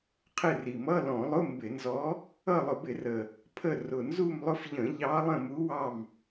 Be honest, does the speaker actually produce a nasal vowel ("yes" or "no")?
yes